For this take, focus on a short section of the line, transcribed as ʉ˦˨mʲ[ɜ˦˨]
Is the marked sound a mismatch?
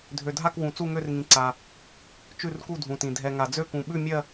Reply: no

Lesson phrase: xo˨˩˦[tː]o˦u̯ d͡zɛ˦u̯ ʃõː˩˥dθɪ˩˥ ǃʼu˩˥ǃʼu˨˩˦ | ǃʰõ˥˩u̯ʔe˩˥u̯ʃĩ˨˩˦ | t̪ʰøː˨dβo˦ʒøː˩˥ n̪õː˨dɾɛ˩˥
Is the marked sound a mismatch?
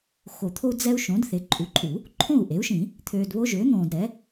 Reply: yes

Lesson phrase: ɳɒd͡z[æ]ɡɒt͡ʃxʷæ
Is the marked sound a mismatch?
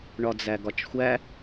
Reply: no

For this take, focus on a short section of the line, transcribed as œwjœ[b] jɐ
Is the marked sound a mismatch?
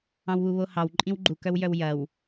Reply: yes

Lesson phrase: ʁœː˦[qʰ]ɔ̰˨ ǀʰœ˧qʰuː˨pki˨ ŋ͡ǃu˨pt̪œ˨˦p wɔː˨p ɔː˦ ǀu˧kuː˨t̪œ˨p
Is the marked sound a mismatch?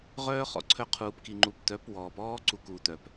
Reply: yes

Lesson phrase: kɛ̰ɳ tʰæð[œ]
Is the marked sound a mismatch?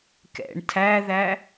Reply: yes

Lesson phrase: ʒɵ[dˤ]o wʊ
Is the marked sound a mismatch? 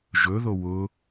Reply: yes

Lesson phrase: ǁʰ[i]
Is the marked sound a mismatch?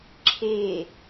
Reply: yes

